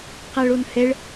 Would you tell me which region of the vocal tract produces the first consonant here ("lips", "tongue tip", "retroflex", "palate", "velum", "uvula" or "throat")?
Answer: uvula